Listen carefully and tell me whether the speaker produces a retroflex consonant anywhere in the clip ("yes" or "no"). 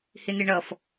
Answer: yes